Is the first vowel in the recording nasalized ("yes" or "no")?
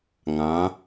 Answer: yes